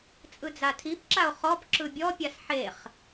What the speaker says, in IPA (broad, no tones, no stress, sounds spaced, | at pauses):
t͡sʼ ɯ d͡z a tʰ i p ǁ a o̯ χ ɔ p ǁ ɯ bʲ ɔ pʲ a s ħ e χ